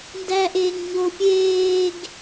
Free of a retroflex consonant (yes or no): yes